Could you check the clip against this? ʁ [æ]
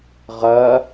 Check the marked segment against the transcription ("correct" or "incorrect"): incorrect